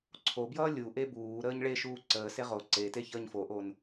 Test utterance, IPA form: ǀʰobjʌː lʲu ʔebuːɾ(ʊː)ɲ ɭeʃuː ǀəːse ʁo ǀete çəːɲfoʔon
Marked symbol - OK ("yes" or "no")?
no